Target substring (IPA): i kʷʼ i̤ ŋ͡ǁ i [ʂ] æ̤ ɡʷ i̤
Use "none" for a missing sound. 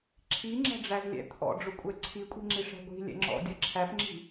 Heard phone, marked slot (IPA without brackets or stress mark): ʂ